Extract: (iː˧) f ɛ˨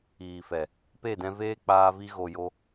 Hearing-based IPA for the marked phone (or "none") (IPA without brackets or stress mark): iː˨